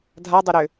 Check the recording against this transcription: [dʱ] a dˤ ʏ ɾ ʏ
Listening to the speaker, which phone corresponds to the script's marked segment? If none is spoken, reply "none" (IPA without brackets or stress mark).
dʱ